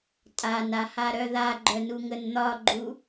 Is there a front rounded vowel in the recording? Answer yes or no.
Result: yes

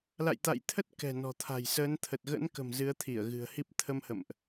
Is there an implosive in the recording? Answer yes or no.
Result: no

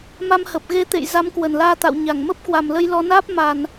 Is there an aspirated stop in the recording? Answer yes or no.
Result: no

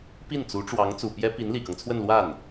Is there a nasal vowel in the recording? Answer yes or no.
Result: no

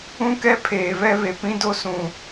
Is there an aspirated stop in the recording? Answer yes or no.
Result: yes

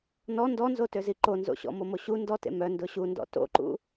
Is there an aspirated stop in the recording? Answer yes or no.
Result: no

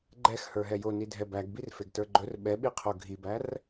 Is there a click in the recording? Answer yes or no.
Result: yes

